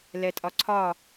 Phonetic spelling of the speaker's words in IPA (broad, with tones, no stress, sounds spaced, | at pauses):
l ɛ˧ tʼ ɒ˧ ǀʰ ɒ˥˨